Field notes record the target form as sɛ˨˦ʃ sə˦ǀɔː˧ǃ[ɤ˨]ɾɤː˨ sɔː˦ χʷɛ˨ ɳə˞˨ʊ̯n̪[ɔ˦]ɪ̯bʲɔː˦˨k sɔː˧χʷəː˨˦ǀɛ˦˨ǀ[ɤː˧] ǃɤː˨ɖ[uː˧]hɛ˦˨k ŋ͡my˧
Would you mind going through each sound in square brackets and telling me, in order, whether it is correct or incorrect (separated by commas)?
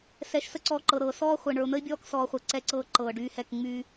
correct, incorrect, incorrect, incorrect